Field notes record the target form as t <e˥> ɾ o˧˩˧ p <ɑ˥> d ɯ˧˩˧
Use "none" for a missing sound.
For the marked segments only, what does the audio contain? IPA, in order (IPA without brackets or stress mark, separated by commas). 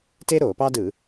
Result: e˥, ɑ˥